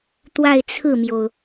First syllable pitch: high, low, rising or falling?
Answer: falling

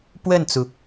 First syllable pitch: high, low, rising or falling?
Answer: falling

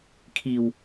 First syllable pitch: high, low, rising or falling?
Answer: low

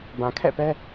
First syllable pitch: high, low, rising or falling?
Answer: low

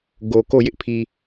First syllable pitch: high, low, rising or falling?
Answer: low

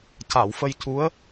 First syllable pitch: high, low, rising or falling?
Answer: low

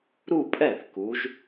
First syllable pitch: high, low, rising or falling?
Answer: falling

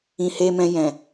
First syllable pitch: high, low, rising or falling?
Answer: low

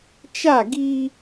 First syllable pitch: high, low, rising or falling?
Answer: falling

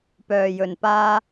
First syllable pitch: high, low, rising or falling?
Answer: low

